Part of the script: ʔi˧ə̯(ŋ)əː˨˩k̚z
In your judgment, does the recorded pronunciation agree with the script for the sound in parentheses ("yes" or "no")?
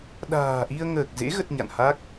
yes